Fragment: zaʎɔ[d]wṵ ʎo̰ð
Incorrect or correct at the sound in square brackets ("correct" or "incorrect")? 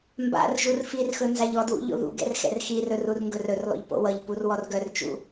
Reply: correct